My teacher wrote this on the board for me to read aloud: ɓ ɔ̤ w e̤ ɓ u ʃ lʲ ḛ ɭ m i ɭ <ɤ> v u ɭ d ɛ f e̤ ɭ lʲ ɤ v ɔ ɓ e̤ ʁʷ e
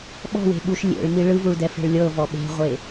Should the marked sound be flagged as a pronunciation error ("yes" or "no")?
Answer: yes